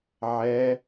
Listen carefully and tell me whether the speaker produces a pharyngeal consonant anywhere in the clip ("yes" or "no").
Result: yes